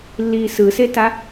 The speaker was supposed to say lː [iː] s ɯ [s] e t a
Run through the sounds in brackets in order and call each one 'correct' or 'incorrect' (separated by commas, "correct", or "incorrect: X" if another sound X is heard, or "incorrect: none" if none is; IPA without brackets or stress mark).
correct, correct